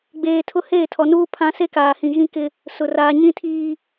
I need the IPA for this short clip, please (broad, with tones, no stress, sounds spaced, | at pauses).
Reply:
ɡ͡b eː˨ tʰ ʊ˦ h eː˦˨ tʰ ɔ˨ n uː˦ pʰ ã˦ s e˦ k aː˨ h ĩ˨ ɣ ĩ˦ k ɪ˦ | s ʊ˨ r aː˨ ɲ ĩ˦ tʰ iː˦